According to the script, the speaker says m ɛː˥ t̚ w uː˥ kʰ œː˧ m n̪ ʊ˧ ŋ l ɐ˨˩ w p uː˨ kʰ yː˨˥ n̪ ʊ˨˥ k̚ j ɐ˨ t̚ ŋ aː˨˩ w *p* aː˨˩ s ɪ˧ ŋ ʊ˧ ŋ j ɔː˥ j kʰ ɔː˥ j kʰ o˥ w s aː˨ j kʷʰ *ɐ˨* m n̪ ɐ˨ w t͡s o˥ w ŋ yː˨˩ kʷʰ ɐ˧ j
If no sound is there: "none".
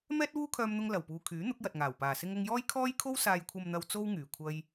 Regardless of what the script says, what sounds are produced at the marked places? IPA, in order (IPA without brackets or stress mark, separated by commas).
p, ɐ˨